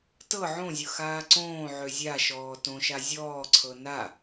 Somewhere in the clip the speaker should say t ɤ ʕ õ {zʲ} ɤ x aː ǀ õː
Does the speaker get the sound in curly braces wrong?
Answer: no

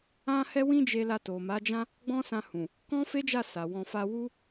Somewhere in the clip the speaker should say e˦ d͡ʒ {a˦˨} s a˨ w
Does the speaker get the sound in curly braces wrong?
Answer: no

